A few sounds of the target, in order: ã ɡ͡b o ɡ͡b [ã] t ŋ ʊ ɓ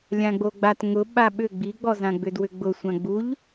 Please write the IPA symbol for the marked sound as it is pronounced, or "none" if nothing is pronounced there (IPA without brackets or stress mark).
a